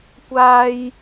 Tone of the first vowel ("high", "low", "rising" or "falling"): high